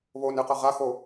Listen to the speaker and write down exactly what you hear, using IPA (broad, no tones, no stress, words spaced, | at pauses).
βonɨqɐ ʁaxo